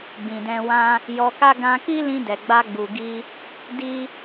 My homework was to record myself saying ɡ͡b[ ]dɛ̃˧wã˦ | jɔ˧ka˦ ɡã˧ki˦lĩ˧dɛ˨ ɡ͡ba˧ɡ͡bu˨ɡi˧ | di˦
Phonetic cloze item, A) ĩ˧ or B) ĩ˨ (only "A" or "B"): B